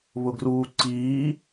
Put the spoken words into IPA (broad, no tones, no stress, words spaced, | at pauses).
βʊɡruːǀiː